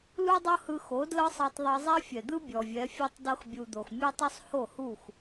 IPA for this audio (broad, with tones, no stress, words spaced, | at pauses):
lu˦dˤɤ˦hɯ˧xo˨˦ dlɤ˦sˤɤ˧tˤðˤɤ˧zˤɛ˦ fʲɛ˨d̪ɯ˦ bʲɔ˨vʲɛ˨˦fʲo˦tˤ dɤ˧xbʲu˨ d̪o˨xmʲo˦tˤo˦sˤ ho˦˨hu˦˨x